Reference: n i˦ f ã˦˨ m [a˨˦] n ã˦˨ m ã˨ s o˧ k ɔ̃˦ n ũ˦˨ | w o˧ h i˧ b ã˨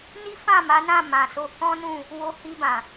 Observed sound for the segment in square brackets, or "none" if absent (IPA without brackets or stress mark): a˨˦